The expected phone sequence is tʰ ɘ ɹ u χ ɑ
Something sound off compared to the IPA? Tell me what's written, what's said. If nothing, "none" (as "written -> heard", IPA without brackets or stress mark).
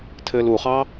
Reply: ɹ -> l